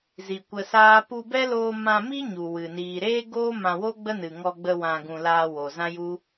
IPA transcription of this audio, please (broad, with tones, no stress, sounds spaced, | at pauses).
z i˨ kʷ ə˧ s aː˦ p u˧ b ɛ˦ l oː˧ m ã˧ m i˦ ɲ u˨ w ɨ˨ n iː˨ ɾ eː˦ ɡ oː˦ m ã˧ w o˦ ɡ͡b ə˦ n ɨ˨ ŋ ɔ˧ ɡ͡b ə˧ w ã˧ ɡ ũ˧ l aː˧ w o˨ z ã˦ j u˦